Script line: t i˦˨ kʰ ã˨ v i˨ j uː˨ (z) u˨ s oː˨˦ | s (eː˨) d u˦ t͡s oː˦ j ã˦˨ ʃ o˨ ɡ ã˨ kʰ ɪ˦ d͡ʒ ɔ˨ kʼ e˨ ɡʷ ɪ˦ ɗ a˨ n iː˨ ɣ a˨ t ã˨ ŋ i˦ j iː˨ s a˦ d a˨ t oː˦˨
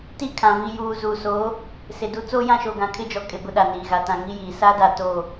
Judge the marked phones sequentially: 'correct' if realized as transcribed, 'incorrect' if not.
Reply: correct, incorrect: e˨

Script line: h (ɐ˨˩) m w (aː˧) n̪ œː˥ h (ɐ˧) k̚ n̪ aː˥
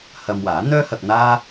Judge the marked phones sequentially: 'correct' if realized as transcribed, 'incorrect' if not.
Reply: incorrect: ɐ˧, incorrect: aː˨˥, correct

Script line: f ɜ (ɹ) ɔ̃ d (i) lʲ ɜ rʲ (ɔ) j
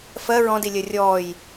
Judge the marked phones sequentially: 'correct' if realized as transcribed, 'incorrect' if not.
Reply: correct, correct, incorrect: ɔː

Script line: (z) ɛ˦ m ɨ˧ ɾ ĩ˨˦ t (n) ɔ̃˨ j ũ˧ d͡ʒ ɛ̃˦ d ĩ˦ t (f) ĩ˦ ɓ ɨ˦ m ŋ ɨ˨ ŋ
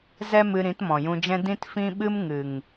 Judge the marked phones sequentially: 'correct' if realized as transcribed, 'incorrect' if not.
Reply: correct, incorrect: m, correct

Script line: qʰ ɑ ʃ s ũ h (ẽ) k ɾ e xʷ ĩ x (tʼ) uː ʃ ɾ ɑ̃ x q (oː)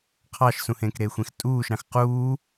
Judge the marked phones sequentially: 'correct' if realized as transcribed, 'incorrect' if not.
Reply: correct, correct, incorrect: uː

